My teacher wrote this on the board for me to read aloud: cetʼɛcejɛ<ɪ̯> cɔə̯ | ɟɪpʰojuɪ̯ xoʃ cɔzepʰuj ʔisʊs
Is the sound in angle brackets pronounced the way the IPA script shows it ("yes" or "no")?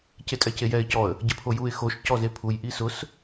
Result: yes